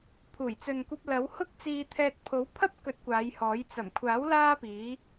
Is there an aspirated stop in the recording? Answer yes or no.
yes